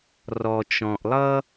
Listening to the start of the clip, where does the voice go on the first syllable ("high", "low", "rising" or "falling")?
low